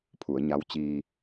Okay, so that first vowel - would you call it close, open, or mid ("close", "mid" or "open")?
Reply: close